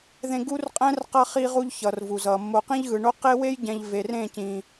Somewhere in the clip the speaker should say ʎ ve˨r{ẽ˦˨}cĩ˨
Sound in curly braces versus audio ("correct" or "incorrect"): correct